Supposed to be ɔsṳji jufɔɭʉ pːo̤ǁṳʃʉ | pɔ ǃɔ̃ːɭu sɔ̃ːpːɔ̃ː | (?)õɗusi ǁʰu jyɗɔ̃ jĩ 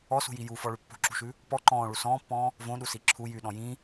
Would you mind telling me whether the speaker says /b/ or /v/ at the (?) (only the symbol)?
v